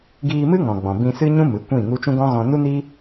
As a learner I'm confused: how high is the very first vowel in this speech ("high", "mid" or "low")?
high